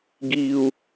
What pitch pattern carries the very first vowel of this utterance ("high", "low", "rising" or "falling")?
low